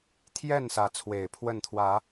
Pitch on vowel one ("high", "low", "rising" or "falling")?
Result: falling